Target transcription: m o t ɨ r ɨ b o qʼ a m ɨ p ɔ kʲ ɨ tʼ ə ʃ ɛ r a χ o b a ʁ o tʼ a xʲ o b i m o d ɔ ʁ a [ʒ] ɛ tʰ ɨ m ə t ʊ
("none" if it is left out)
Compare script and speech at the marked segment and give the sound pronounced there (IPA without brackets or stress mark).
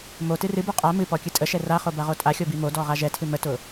ʒ